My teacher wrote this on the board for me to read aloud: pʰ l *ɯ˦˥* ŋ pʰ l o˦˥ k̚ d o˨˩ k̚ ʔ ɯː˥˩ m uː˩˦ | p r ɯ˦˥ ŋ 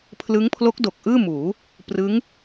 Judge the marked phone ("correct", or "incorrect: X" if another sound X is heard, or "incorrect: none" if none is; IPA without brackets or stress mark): correct